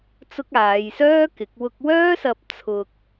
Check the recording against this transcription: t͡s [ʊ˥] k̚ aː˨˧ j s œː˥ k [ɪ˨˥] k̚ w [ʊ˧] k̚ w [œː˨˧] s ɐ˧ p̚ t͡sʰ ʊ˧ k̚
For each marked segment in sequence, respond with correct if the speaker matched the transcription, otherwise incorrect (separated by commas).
correct, correct, correct, incorrect